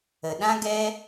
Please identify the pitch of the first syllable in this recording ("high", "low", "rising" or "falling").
low